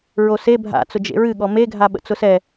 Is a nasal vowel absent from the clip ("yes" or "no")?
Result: yes